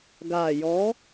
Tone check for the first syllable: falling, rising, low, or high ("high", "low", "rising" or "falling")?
low